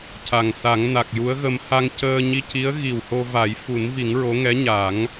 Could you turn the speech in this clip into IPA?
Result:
c a˨˩ ŋ s a˨˩˦ ŋ n a˨˩ k̚ j u˧˥ ə̯ ɣ ə˧ m h a˧ ŋ c əː˧ ɲ i˧ c i˧˥ ə̯ ɣ i˨˩ w h o˧ v a˨˩˦ j f u˨˩˦ n v i˨˩˦ ŋ ɹ o˧˥ ŋ ɛ˧˥ ɲ a˨˩˦ ŋ

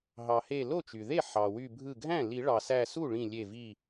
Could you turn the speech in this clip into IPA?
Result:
ɦ ɑ˩ h e˧˩ l o˥˩ t͡ʃ y˩ ð e˥˩ ħ ɑ˩ w y˧˩ bʱ ɯ˧˩ ɡʱ æ̃˥˩ l i˨˩˦ ɭ ɑ˩ s æ˧˩ s u˥˩ ɭ ĩ˧˩ lʲ e˧˩ v i˧˩

